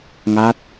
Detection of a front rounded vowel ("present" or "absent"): absent